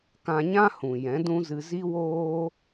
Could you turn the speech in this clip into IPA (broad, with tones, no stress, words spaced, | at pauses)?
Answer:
kã˧ɲã˦ hũ˨ jɛ̃˨˦dũ˦zɨ˧ zi˦woː˦